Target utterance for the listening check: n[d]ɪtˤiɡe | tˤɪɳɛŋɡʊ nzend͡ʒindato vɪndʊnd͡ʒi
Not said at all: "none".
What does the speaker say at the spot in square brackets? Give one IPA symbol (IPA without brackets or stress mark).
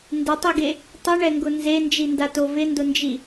d